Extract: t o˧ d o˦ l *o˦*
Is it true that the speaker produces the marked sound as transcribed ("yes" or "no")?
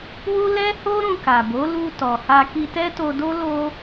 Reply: yes